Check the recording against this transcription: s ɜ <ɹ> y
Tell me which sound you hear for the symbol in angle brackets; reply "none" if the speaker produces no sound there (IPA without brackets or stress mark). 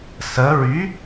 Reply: ɹ